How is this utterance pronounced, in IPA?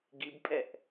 ɡibpʼɛʔ

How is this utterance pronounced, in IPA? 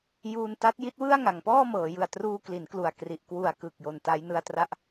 juː˧nta˦˥t̚ji˦˥t̚wɯ˥˩a̯ ŋa˩˦ŋpɔː˥˩mɤː˩˦ jɯ˨˩a̯truː˧ kli˩˦nklu˨˩a̯ kri˨˩ʔ kwu˨˩a̯kɯ˨˩k̚ jo˨˩nta˦˥j nɯ˧a̯tra˥˩ʔ

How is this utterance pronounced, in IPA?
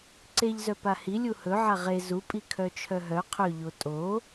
ǀeʎzœ pahi lʲuhɵʕa ʁe zupʼi kʰœt͡ʃʰœɦœ qʰɵʎo tʼo

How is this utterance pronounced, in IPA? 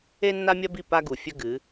e˦nːa˦mʲɐ˦bi˦˨ pa˦ɡu˨fʲɵ˦ɡɨ˨˦

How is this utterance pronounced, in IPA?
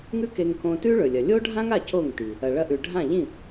ŋʉ˥ke˧ŋ kõ˧tʉ˥ɭɵ˩lʲɐ˩ lʲo˥ɖʱã˥ŋa˥˩ co˥˩ŋti˩ | ɐ˩ɭɐ˧ʔʉ˩ ɖʱã˥˩ʎĩ˥˩

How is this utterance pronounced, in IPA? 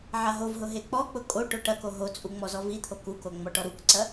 ʕaɦovɦʊ ɦek͡pɔk͡pʊ kʼo ʈoʈɐko ɦot͡sʼu ŋ͡mɔzɔvit̪ʰo kuko ŋ͡mɔʈɔɾukǀɐ

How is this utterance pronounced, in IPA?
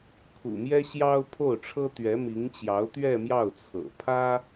kʰṵ˨˩mjɛ˥ɕjɑ˥ʊ̯ pʰo˥˩ʊ̯ʈ͡ʂʰɤ˥ t̪ɥɛ˧˥mi˧˥ŋt͡ɕjɑ˧˥ʊ̯ t̪ɥɛ˥˧mjɑ˥˩ʊ̯t͡sʰɤ̰˨˩ pʰä˥

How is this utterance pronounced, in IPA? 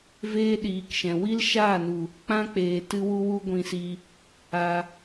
veː˦ɗiː˨kʃɛ̃˨ wi˦lʃaː˦˨nu˨ | k͡pã˦k͡peː˨ tɨ˦wu˦ wu˦ɡʷĩ˧si˧ | a˧

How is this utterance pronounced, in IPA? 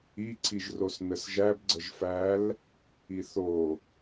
i ǀʰiʒrosnəsʒæb ɡ͡ǀəʒfæl | iθo

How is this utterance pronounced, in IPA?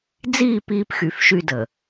d͡ziː˦˨ piː˦pxy˨fʃy˦də˨

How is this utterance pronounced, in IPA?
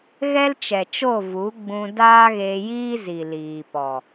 ɣɛ˦lt͡ʃɛ˨t͡ʃo˦˨ vu˨˦ɡ͡bũ˧ daː˦ɣeː˧jiː˦zi˨ liː˨pɔ˨

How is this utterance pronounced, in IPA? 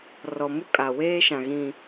rɔ˨ mu˦kʼa˨ weː˦ʃã˨ɣĩ˨

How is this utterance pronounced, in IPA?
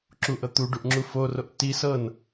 ǁuʔɤ t̪uɖuʔ ŋ͡ǁuforoʔ ti sɤn

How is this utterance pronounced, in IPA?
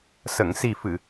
sə˨˩˨ŋsi˨˩fɨ˨˩˨

